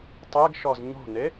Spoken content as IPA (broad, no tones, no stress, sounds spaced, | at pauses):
tˤ ɛ ɡ ʃ ɔ z ɲ o̤ n e